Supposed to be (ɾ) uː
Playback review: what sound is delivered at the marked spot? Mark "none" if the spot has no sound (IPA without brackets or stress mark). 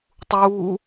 tˤ